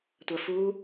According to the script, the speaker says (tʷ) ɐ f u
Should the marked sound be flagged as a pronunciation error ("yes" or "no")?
no